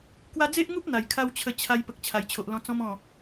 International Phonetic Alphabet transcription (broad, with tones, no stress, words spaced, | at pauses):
kwa˦ d͡ze˦ʔŋu˦p̚ n̪a˨˩jkʰa˦wt͡ɕʰə˧ t͡ɕʰa˧j pə˨k̚ t͡ɕʰa˨˩jt͡ɕʰo˨ʔlɔ̃˧ t͡sɔ̃˧mɔ̃˨˩